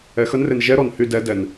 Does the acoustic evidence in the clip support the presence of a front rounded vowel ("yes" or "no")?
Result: yes